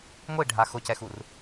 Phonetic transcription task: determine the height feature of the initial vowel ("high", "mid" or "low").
high